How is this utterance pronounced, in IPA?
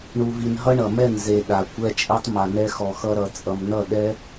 ɳ u˧ v i˧ n ɦ ʌ˦ ɳ ʌ˨ m ɛ˦˨ n z e˨ ɗ a˨ kʷ ɛ˧ t͡ʃʼ i˧ tˤ m a˨ n ɛ˧ x ɔ˨ x ʌ˧ ɾ ʌ˨ t͡sʼ ʌ˨ m n ʌ˦˨ ɗ ɛ˦

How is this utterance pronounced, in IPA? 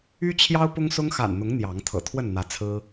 y˦ t͡ɕʰ j ɑ˦ ʊ̯ p ʊ˦ ŋ s ʊ˦ ŋ x a̰˨˩ n n̪ ʊ˨˦ ŋ n̪ j ɑ˨˦ ŋ t̪ʰ ɤ̰˨˩ t̪ʰ w ə˥˨ n n̪ ä˨˦ t͡sʰ ɹ̩˦

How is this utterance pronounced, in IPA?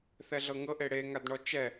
θ ɛ ɮ ɤ ŋ ɤ ʔ e ɽ e ŋ a d ɳ ɔ t͡ʃ ɛ

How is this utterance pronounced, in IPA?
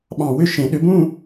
ɓ ɑ̃˧˩ w ʏ˥˧ ʃ ẽ˨˩˦ ɗ ʏ˨˦ b ũ˥˧

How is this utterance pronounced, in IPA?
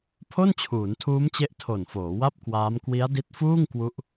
pʰ o˥˩ n t͡ɕʰ uː˩˦ n tʰ uː˦˥ m t͡ɕ e˦˥ ʔ tʰ o˨˩ n f oː˩˦ w a˥˩ p̚ k w aː˦˥ m k w i˦˥ a̯ d i˦˥ t̚ f uː˥˩ ŋ k w u˦˥ ʔ

